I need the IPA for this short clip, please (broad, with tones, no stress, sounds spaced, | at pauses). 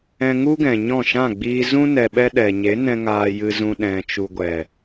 ɛ̃˧ ŋ u˦ ɡ ɛ̃˨ ɲ ɔ̃˦˨ ʃ ã˦˨ ɡ͡b iː˧ z ũ˦ n ɛ˧ ɓ ɛ˦ ɗ ɛ˨ ɲ e˨˦ n ɛ̃˧ ŋ aː˧ j ɨ˧ z ũ˧ ɗ ɛ̃˨ t͡ʃ u˨ ɡʷ ɛ˨